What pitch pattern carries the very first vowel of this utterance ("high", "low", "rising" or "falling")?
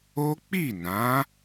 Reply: high